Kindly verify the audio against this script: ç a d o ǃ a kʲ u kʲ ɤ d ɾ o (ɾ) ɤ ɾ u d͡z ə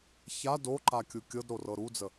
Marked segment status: incorrect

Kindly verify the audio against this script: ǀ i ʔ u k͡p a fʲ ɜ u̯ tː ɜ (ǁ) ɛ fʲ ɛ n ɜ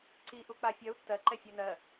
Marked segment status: incorrect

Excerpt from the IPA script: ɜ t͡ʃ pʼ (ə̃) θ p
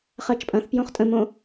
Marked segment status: incorrect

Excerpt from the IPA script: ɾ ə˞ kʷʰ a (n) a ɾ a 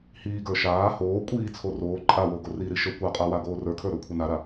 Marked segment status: correct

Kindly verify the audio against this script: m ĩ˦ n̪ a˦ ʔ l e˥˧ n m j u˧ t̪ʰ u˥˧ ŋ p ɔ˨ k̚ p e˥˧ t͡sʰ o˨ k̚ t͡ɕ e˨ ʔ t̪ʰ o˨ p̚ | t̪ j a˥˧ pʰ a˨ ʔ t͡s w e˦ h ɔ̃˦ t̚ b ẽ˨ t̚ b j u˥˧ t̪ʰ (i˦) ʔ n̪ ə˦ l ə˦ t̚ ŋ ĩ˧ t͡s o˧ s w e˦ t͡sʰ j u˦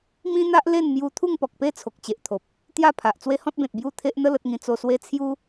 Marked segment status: incorrect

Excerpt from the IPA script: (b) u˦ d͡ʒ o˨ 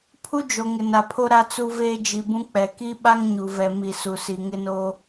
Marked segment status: incorrect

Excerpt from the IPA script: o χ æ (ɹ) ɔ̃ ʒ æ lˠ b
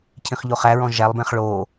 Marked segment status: correct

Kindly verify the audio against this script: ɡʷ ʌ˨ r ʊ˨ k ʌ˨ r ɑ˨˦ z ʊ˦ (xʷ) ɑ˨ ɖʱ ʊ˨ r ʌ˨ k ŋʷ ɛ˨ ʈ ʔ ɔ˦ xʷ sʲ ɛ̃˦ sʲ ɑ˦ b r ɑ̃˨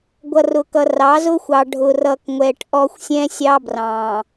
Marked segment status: correct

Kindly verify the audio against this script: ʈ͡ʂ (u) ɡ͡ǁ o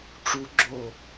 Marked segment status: correct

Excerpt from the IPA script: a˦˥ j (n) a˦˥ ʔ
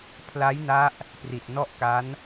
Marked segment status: correct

